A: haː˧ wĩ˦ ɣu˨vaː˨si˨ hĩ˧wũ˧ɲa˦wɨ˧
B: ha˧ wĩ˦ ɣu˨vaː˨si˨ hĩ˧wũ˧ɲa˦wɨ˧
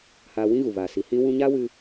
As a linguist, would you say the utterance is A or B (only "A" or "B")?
A